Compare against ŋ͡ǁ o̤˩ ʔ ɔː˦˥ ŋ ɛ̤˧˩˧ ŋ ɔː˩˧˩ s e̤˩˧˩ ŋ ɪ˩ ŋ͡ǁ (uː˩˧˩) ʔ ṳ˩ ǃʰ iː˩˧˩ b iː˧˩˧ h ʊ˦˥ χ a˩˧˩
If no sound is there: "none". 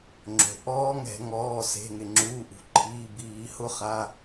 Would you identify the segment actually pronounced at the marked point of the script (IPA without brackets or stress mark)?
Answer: uː˩˧˩